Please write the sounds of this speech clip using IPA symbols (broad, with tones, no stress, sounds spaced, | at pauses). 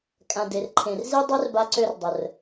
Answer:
kʼ ã˨ d e˨ r ǃʰ ẽ˨ r z i˦ dˤ e˦ r b a˧ ǀ ø˧ r dˤ ə˨ r